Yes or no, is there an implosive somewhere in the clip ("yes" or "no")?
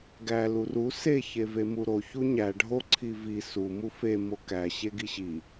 no